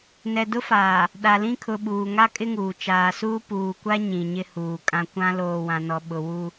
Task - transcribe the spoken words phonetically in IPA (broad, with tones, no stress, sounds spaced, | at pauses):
n ɛ˨ d ʊ˦ f aː˨ | ɗ a˨ l ĩ˦ kʰ ʊ˨ ɓ uː˨ ŋ a˦ kʼ ɪ˦ ŋ uː˨ t͡ʃ aː˨ s uː˦ p uː˨ kʷ a˦ ɲ ĩ˨ ɲ ɪ˦ h uː˨ kʼ ã˦ kʷ ã˦ l oː˨ w ã˨ n ɔ˨ ɓ ʊ˨ w u˦